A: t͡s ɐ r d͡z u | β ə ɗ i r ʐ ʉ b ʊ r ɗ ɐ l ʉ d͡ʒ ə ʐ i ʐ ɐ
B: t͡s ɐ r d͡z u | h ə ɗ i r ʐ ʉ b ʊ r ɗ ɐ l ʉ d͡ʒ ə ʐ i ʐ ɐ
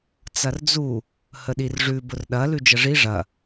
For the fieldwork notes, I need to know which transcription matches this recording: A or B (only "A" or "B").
B